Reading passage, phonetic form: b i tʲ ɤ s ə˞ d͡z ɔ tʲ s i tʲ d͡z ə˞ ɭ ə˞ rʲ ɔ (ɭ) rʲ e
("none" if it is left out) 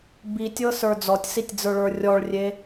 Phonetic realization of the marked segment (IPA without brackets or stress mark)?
ɭ